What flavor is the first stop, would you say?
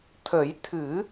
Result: aspirated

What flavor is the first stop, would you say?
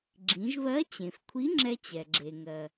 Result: click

